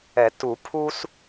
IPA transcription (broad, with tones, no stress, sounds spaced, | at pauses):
ɛ˨˩˦ t u˨˩˦ pʰ u˦ s